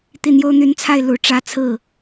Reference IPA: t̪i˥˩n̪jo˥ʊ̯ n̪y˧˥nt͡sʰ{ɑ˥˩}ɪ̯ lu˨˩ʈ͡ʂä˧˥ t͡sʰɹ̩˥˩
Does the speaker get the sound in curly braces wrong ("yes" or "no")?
yes